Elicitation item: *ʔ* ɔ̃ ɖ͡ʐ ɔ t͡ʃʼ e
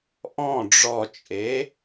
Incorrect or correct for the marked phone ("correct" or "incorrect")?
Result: correct